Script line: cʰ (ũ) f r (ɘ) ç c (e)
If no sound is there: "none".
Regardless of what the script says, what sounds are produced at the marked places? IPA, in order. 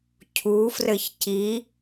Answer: u, ɘ, i

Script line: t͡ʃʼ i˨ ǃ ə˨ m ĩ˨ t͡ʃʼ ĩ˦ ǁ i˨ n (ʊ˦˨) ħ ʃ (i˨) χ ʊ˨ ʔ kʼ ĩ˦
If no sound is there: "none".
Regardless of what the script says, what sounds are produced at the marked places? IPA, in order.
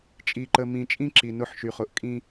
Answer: ʊ˦˨, y˨

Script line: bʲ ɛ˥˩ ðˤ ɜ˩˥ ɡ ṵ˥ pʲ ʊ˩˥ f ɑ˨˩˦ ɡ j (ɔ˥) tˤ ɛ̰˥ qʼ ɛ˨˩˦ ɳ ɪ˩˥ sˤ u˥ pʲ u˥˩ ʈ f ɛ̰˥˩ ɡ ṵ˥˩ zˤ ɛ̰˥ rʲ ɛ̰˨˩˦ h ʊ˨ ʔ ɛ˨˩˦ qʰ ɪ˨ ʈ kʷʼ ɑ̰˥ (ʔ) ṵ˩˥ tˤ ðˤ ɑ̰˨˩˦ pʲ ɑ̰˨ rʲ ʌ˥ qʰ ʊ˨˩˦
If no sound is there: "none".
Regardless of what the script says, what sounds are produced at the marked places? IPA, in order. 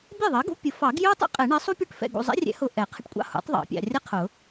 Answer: ʊ˥, h

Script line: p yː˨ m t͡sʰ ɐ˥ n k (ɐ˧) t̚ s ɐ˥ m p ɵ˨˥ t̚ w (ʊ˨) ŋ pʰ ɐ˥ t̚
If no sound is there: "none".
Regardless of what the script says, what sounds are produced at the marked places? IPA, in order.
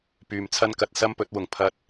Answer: ɐ˧, ʊ˨˩

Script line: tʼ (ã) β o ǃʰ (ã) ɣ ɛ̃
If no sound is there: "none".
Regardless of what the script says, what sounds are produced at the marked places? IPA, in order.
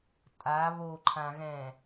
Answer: a, ã

